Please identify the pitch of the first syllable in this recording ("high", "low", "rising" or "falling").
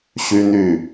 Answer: high